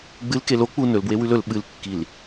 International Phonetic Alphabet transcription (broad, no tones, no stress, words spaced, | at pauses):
ɡ͡bɨl kelo k͡pu nɵlbwe wʉlɵl ɓɨlkːil